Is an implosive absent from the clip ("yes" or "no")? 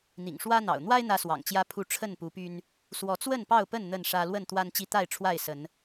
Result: yes